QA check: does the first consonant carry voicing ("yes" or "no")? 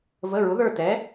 yes